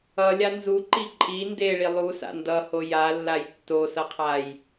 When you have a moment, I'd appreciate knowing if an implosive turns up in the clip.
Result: no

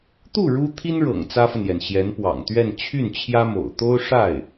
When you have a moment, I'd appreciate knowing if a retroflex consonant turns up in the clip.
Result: yes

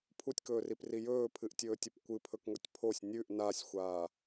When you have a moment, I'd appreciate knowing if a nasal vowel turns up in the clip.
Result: no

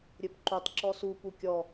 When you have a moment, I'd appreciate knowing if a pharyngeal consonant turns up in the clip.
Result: no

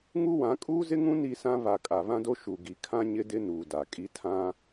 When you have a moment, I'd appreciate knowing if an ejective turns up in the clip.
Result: yes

